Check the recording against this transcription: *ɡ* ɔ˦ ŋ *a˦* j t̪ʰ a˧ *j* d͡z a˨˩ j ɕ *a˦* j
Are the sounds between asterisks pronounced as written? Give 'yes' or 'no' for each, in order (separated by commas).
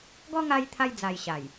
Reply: yes, no, yes, no